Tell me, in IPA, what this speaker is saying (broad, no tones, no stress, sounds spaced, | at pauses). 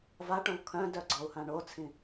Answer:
v a ʈ õ v kʰ œ̃ d œ ɡ͡ǀ ɒ u̯ h ã ɳ o t͡sʰ ĩ